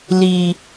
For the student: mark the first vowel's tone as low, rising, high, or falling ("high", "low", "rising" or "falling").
low